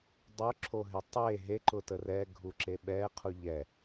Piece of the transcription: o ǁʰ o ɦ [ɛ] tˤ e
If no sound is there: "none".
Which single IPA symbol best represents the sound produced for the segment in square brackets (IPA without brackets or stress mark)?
e